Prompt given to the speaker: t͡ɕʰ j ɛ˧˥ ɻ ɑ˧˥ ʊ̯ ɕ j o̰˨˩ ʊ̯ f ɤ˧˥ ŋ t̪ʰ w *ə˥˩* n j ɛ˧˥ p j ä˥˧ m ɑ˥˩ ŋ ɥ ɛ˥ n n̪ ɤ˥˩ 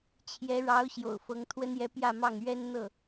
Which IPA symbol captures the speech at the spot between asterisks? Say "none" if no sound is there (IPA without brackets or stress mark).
ə˥